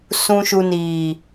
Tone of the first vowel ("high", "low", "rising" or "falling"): low